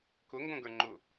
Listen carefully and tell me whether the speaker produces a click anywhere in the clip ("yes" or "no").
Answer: yes